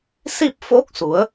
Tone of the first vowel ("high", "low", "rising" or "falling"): falling